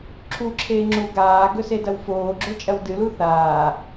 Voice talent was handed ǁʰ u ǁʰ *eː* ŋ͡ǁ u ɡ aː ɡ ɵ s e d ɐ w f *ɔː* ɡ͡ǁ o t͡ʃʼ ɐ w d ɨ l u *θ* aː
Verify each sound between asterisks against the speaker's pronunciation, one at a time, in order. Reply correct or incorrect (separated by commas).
correct, incorrect, correct